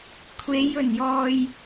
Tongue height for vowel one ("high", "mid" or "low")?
mid